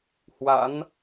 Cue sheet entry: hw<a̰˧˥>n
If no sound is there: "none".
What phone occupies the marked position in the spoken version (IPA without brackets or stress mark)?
a̰˧˥